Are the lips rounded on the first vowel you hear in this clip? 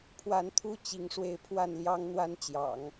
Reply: no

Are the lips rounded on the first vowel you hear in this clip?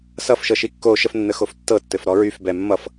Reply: no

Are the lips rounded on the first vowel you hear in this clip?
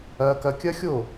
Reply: no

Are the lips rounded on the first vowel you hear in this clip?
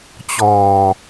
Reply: yes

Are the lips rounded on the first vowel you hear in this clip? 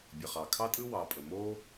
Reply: no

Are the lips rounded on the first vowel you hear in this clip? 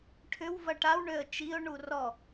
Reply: yes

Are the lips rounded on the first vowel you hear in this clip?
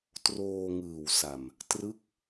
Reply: yes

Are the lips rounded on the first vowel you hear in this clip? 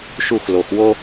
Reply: yes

